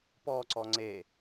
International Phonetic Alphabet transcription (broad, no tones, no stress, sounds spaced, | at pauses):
p ɔ ǀ ɔ ŋ͡ǀ e